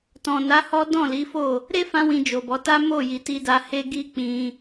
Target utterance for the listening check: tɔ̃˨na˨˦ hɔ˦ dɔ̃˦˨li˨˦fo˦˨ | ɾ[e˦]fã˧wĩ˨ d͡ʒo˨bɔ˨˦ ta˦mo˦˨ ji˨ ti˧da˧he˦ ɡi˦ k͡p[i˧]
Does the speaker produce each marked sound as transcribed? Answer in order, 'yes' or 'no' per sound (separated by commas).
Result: yes, no